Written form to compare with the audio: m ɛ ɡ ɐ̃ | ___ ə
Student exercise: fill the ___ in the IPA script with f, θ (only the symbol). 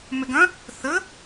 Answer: θ